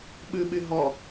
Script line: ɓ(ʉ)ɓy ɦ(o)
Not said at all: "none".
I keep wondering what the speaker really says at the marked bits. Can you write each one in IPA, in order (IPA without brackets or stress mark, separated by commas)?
ʉ, ɔ